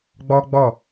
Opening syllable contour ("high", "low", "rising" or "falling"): high